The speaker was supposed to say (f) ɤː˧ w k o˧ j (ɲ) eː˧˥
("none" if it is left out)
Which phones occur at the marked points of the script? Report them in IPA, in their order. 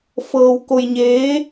f, ɲ

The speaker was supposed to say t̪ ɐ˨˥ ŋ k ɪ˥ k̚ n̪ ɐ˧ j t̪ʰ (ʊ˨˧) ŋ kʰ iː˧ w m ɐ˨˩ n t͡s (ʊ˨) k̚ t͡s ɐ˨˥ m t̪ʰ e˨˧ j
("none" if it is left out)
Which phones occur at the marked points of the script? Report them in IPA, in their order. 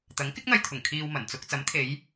ʊ˨˩, ʊ˧

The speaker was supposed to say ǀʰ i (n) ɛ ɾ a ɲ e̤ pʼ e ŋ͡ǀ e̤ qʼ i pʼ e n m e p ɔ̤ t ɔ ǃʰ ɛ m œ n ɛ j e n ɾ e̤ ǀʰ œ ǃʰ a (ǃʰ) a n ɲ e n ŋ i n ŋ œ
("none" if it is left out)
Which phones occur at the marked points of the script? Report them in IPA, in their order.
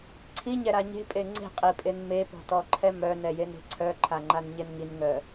ɲ, ŋ͡ǃ

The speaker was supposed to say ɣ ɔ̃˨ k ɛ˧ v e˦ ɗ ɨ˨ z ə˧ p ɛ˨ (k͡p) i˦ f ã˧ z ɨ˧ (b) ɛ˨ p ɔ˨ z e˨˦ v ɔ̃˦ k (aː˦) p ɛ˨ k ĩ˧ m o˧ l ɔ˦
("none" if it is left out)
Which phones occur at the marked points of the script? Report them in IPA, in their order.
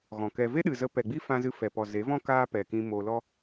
ɡ͡b, f, aː˦

